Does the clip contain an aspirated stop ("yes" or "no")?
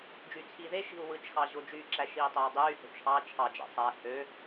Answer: yes